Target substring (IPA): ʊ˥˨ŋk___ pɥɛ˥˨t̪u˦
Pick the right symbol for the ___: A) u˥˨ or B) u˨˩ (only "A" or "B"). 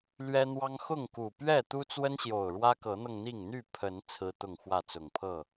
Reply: B